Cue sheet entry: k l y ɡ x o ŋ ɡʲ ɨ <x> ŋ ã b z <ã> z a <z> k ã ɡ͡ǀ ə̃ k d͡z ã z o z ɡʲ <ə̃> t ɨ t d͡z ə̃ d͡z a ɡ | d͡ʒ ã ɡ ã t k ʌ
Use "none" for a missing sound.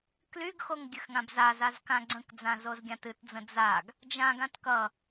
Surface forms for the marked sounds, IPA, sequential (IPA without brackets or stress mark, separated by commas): x, a, z, ã